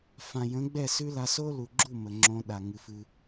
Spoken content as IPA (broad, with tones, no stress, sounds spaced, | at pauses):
f ã˨ j ə̃˨˦ ɡ͡b ɛ˦˨ s ʉ˦ l a˧ s o˦ l u˨ ɡ͡ǁ u˦˨ m ə˨ ŋ͡ǁ õ˧ ɗ a˨ ŋ ɨ˨ f ɨ˧